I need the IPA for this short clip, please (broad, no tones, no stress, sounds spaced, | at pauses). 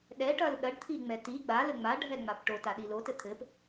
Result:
ɗ ɛ ʈ ɐ l ɗ ɐ ɖ t̪ʰ i ŋ͡m ɛ t i ɡ͡b a l ɘ ŋ͡m a ɖʱ ɛ ŋ͡m a p ʈ o t a ɗ i l o t ɘ t̪ʰ ɘ p